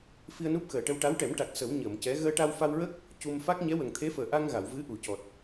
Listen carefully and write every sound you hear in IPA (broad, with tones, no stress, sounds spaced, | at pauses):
f i˧ ə̯ n u˦˥ p̚ x əː˨˩ ʈ ə˧ w ʈ a˧˥ w ʈ ɛ˨˩˦ m ʈ a˨˩ k̚ s ə˨˩˦ w ɲ əː˨˩˨ m c ɛ˧˥ ɣ əː˧ ʈ a˧ w f a˧ w ɹ ə˦˥ k̚ | c u˧ m f a˦˥ k̚ ɲ ɛ˧˥ w ə˨˩ ŋ t̪ʰ e˧˥ f əː˨˩ ʔ a˧ ŋ ɣ a˨˩˨ w v ɨ˧˥ ʔ u˨˩˨ c ɔ˨˩ t̚